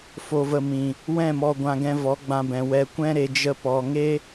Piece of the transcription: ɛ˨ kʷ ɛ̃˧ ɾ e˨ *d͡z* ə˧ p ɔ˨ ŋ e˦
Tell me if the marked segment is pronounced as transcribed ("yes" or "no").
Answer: no